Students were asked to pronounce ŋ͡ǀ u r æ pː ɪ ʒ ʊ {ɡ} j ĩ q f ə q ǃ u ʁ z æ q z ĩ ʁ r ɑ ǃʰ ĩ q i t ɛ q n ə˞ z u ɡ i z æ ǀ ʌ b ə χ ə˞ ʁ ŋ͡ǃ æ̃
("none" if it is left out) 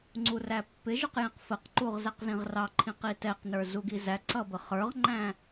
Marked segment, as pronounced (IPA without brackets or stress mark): q